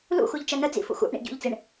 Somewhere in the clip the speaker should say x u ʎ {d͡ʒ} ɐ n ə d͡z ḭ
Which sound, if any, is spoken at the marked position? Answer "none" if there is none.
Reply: t͡ʃ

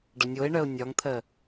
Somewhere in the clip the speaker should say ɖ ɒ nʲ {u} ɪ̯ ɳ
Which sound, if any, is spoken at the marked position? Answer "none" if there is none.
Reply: o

